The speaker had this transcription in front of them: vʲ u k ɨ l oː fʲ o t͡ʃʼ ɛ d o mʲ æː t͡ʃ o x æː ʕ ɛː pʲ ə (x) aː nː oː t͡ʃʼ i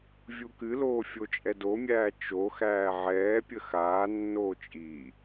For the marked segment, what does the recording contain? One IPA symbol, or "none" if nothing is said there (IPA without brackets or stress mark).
x